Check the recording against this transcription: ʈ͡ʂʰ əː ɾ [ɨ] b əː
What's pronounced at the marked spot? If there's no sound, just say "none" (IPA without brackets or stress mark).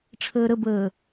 ə